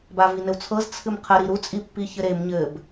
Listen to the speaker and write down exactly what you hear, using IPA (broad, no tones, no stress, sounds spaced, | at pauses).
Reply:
b a v i n ɘ w t͡sʰ ɤ z t͡sʰ ɨ m qʰ ə ɾ i ɾ u t͡sʼ i pː i ç ɘ ɾ e m ɲ ɘ b